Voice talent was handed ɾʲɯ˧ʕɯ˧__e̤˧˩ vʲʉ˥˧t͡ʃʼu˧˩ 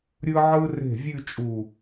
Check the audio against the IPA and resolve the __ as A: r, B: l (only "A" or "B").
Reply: A